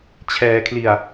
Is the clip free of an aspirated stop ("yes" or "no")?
no